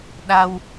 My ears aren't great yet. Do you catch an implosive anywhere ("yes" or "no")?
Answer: yes